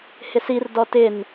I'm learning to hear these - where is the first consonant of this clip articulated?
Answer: throat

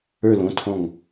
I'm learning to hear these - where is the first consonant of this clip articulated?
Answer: tongue tip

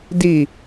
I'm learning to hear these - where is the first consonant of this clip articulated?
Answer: tongue tip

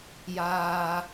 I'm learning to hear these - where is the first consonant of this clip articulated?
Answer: palate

